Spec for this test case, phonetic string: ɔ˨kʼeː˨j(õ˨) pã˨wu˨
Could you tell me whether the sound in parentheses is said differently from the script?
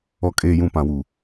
yes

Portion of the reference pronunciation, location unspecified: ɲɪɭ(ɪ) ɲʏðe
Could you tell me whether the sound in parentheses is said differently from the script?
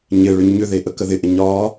yes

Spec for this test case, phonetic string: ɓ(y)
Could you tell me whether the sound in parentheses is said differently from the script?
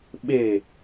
yes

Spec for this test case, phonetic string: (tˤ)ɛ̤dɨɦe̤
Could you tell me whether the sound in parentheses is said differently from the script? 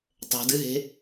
no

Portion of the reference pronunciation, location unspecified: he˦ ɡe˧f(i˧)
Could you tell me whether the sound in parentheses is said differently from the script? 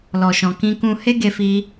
no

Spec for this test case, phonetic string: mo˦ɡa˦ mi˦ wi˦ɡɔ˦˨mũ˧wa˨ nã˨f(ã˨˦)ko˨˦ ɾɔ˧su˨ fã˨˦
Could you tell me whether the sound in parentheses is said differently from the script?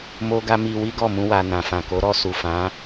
yes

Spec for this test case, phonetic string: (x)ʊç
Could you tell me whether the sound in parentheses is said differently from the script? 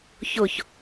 yes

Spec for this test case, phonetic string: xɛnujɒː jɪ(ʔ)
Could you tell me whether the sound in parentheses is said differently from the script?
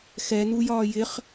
yes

